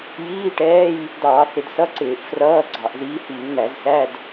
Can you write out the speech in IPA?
jiː˧˥˧ʈɛː˧˥˧j | dɑː˧˩˧θɪ˧˩˧dsʌ˧˥˧ǀɪː˧˩˧ʔ frʌː˧˥˧ ɡ͡ǀɑ˧˩˧ʔ ziː˨˦hiː˧˩˧ŋn̪æ˧˩˧zsæ˧˥˧d

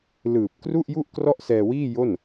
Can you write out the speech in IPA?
lɯː˨˩p̚ kru˥˩ʔju˥˩ʔ krɔ˥˩ʔsɛː˧wiː˥˩ jo˥˩n

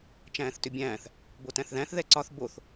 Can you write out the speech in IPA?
t͡ʃæ̃ːθtʏbʲæ̃ːθ | botæ̃θðæ̃θ ðɛǀɒθ boθ

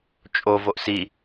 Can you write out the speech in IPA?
t͡ʃʼo voʔsi

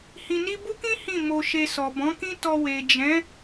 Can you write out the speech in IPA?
hĩ˧ni˦ bu˦kĩ˦ hĩ˦˨ mo˧ʃe˧ sɔ˨bɔ̃˨˦kĩ˦ tɔ˧ we˨d͡ʒɛ̃˨˦

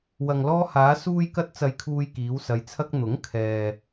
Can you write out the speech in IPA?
wɐ˨ŋlɔː˧haː˨˧ suː˥jkɐ˥t̚ t͡sɐ˧jkʰuː˧jkiː˨˧w sɐ˨˧jt͡sʰɐ˧k̚ n̪ʊ˨˥ŋ kʰɛː˨

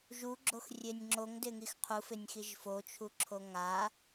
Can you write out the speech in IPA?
ʒuɡ͡ǁoxrʲenʲ ŋ͡ǁoŋdɪŋix qʰufɪnʲxiʒ fot͡ʃʰuǁʰo ŋa

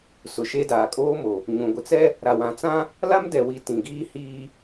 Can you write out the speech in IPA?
sʊ˨ʃe˦daː˨ kʼoː˦mo˨ | ɲũ˨ɡʷɪ˨ t͡sɛ˦ | ɾa˨wã˨t͡sã˦ | la˦mdɛ˨wi˨ tĩ˨ɡiː˦ hiː˦

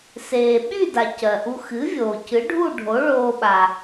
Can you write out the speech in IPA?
seː˩ɓy˥˨da˩ cɜ˩ʔu˧ xɨ˩˥vʲoː˩ cɨ˩˥ɖʱu˥˨ɖʱo˩˥ ɭoː˧ɓa˩

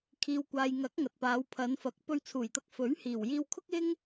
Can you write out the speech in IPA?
kʰiː˨wkʷaː˨jŋɐ˨˥k̚ ŋɐ˨t̚paː˨˧w pʰɐ˨˧nfɐ˨˥k̚ pɵ˧ɥt͡sʰuː˨˩jt̪ɐ˧k̚ fɵ˨˥ɥhiː˨˩w jiː˧wkʰʊ˥k̚ ɪ˥ŋ

